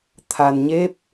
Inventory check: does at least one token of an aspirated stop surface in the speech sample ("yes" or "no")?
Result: yes